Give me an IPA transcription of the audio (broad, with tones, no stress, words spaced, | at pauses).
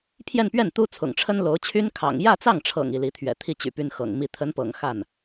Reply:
pʰjɛ˥˧npɥɛ˥˩n t̪u˥t͡sʰʊ̰˨˩ŋ ʈ͡ʂʰə˥nlo˧˥ʊ̯t͡ɕʰy˥n kʰɑ̰˨˩ŋ jä˥˧t͡sɑ˥˩ŋʈ͡ʂʰɤ̰˨˩ŋ i˥˩li˧˥ t̪ʰɥɛ̰˨˩ t̪ʰi˥˩ t͡ɕy̰˨˩py˥n xɤ̰˨˩ŋmi˥˩ t̪ʰə˧˥npɤ̰˨˩ŋ xa˥˩n